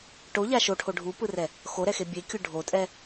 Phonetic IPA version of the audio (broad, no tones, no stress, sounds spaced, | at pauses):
ʈ o ʎ a ʃ o ʈʰ o ɖʱ u p ɯ r ɛ | x o ɾ ɛ x e bʲ e kʲ u ɖʱ o tʼ ɛ